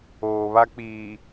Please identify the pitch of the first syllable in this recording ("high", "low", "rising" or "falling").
low